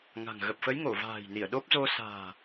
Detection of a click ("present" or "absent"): absent